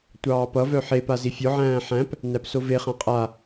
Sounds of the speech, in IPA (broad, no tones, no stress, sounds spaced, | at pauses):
tʷ ɑː p ʌ v œ ħ e p a z i fʲ ɔ ʕ æ̃ː ħ æ̃ p | n æ p s o v e χ ã qʼ a